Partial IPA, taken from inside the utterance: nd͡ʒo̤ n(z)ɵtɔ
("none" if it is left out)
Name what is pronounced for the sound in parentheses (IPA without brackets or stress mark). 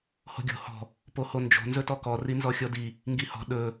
z